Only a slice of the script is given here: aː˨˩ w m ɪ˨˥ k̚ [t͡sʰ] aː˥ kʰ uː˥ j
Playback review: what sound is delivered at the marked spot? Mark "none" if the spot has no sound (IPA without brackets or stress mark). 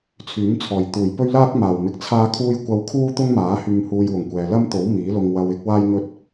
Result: t͡sʰ